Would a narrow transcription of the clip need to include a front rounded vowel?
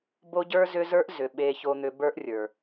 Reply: yes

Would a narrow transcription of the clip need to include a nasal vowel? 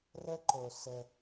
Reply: no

